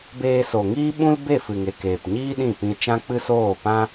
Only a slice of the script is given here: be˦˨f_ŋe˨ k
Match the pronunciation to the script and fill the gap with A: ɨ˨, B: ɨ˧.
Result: A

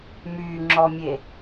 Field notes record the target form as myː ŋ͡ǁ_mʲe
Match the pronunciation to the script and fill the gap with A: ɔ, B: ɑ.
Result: A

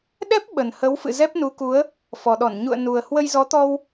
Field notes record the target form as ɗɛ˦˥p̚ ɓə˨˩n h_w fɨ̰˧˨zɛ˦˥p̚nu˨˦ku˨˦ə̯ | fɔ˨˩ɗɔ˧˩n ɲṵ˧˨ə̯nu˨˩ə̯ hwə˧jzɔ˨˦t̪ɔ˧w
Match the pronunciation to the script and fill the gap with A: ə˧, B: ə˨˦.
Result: B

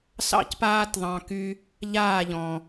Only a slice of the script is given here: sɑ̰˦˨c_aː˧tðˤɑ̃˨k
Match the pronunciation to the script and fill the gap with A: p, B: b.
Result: A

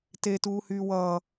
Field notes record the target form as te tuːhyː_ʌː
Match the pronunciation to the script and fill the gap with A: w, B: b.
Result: A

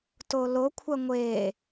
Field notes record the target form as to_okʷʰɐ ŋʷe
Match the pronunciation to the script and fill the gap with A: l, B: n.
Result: A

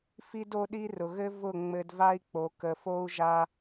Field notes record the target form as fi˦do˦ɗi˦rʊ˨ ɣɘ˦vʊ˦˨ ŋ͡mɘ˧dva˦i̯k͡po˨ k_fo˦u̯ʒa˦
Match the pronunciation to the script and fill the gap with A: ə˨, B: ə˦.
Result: A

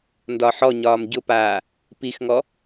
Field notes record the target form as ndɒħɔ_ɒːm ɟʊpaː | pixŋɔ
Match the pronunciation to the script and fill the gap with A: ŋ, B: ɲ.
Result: B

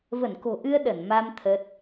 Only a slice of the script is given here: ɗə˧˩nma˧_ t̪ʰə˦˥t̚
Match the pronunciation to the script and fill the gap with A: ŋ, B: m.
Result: B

